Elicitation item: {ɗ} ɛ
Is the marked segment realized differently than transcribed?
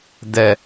yes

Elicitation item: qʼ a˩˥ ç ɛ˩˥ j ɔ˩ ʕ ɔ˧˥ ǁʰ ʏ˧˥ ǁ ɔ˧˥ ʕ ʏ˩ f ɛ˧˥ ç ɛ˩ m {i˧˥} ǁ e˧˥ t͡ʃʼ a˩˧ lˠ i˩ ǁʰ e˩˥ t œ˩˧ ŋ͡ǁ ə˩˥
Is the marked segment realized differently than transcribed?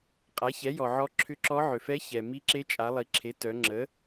no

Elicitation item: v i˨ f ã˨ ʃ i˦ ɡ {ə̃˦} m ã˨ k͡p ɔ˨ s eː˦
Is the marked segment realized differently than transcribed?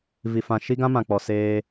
yes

